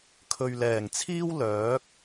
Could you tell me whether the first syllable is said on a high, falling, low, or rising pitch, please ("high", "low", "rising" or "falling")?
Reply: low